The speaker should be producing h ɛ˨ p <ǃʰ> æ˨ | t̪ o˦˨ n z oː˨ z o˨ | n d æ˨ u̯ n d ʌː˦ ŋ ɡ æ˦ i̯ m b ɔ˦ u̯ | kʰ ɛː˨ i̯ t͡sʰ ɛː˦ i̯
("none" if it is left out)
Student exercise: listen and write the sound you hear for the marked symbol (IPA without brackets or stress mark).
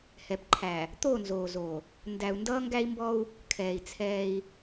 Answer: ǃʰ